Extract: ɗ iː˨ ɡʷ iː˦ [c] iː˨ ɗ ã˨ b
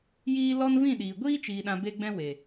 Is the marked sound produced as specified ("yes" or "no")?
no